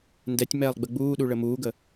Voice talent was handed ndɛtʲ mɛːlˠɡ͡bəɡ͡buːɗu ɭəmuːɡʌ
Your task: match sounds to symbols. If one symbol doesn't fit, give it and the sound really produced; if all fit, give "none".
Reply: ʌ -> ə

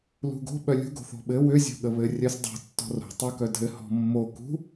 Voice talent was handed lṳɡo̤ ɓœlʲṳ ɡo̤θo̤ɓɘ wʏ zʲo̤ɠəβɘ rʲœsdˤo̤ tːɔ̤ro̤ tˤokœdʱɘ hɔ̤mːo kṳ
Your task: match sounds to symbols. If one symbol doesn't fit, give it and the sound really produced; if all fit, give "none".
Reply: none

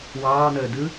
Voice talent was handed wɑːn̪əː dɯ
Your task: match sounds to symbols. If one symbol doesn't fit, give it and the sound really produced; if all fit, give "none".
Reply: none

